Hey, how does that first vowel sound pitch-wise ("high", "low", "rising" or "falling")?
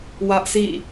high